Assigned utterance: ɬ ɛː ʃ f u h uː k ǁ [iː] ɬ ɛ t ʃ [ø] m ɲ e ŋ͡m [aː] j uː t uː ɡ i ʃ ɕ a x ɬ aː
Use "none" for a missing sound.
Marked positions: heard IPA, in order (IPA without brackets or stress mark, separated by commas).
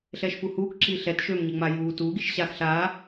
iː, ø, a